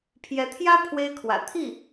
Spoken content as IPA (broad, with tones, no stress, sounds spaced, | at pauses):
pʰ j ɛ˧˥ t̪ʰ j ä˥ pʰ w e˥ ɪ̯ kʰ w ä̰˨˩ t̪ʰ i˥˩